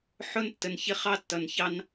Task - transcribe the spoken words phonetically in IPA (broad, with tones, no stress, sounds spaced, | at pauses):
ħ ʊ˦ n tː ə˨ n ç ɪ˦ χ ɑ˦ tː ʌ˨ n ç ɑ˦ n